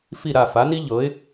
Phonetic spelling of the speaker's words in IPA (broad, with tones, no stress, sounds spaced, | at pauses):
f i˥˩ ɾ a˥˩ f a˩˥ n i˥ ʎ ɤ˩˥ ɪ̯